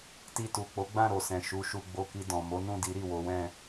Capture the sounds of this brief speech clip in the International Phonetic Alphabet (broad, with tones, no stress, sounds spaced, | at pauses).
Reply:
t i˧ t u˨ k͡p o˨˦ ɡ͡b ã˦˨ ɾ o˨ s ɛ̃˨ ʃ u˨˦ ʃ u˧ ɡ͡b o˧ k i˧ d ɔ̃˨ m o˨˦ n ũ˦˨ d i˨˦ ɾ i˦˨ w o˨˦ w ɛ̃˦˨